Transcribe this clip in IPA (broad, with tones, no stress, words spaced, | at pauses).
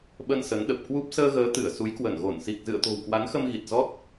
ɓə˧nsə˨˦nɗə˨˩p̚kwu˦˥p̚ səː˧ɣəː˨˦ t̪ɨ˧˩ə̯su˨˦jkwə˧˩nɣo˧˩n si˨˩k̚zɨ̰˧˨ə̯t̪o̤˨˩w kwa˨˦nxə˧mɣi˨˩t̚ zɔ˦˥t̚